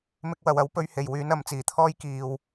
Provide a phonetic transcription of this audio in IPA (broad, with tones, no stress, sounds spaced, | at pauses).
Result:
m ɪ˧ k̚ w ɐ˨ w ɐ˨˥ w p ɵ˧ ɥ h e˨˩ j w yː˨˥ n ɐ˨˧ m t͡s iː˨˩ t̪ʰ ɔː˥ j k iː˨ w